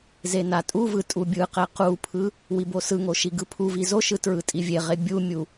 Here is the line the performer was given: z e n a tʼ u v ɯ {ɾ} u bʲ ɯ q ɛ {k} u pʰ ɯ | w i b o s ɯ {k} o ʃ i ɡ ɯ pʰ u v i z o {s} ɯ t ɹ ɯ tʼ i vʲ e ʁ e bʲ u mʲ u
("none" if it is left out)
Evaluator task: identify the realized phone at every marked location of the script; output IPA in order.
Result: tʼ, q, ŋ, ʃ

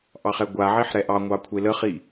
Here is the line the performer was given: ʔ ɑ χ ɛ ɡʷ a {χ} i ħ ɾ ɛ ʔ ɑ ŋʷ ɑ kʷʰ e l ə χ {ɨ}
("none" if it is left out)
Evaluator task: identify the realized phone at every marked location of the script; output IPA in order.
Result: ʕ, i

